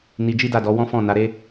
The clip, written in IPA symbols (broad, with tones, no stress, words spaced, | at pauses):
ni˧d͡ʒi˦da˦˨dɔ˨˦ wɔ̃˦fɔ̃˦˨na˨˦ ɾe˦